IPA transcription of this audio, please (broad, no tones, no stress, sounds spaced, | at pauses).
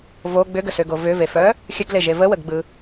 v o ɡ͡b ʏ ɡ ə s ʏ ɡ o v ʏ v e f œ | xʲ ə ɡ l e ʒ e v ə w ə ɡ ɡ͡b ɯ